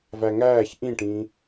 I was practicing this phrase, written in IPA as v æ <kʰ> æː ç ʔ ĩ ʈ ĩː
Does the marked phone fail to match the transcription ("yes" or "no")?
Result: yes